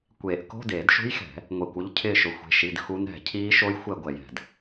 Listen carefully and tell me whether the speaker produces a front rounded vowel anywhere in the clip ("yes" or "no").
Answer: no